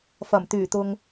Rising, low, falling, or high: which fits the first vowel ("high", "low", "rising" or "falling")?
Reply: low